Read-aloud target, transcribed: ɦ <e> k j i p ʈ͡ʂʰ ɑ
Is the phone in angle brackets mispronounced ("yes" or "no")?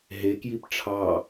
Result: no